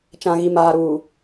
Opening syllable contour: low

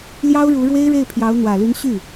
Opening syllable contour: high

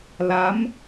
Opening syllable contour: rising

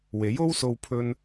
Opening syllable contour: rising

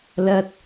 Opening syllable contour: high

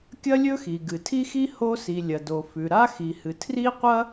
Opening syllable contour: high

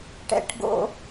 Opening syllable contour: low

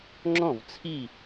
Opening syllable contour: falling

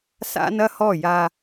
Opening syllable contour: high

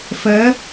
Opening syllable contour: rising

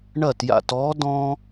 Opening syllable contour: falling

